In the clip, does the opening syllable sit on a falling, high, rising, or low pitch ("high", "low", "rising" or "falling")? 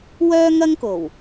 high